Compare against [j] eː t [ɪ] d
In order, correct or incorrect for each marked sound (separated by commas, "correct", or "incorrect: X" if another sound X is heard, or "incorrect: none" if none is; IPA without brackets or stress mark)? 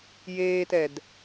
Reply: correct, incorrect: ɛ